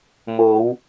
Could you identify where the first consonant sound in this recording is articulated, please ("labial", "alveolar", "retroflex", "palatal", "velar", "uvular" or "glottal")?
labial